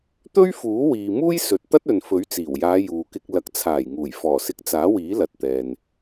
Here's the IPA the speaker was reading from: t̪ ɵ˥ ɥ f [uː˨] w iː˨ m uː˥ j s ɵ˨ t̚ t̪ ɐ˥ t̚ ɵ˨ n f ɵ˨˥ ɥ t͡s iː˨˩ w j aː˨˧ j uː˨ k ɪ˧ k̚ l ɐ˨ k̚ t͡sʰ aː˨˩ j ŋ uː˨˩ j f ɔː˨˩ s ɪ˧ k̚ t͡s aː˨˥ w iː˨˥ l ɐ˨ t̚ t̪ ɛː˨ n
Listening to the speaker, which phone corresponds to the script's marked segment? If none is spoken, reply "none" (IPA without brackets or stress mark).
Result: uː˨˥